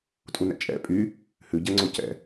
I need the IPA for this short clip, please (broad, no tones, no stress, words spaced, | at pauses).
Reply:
tʼunɛ̰t͡ʃʼɛ̰ pʼy | hʉɟɛŋ͡ǀo cɛ̰